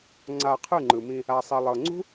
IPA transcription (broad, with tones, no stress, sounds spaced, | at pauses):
ŋ͡ǀ a˧ qʰ ɯ˦˨ ŋ͡ǃ ɯ˨ m ĩ˧ | a˨ sˤ i˨ lˠ ɤ˨ ŋ͡ǀ ṳ˦